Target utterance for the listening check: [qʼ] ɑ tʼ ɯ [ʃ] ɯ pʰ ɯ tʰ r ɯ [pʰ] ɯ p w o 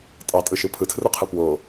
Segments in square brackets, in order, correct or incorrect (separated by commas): incorrect, correct, incorrect